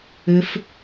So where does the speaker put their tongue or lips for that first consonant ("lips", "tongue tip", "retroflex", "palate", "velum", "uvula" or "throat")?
lips